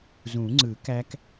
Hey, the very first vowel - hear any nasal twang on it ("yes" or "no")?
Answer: yes